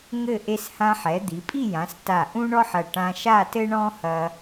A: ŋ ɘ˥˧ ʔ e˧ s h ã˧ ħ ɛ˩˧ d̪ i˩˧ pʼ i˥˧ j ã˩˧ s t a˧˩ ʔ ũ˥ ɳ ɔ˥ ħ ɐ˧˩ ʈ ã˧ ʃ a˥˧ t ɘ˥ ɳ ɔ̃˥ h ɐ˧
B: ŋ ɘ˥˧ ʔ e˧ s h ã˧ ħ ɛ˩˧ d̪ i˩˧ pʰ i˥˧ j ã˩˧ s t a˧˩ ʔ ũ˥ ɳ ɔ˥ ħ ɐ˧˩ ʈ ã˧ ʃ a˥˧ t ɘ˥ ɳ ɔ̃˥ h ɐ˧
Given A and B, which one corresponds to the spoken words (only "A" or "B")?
A